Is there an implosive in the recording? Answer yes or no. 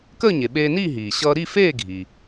yes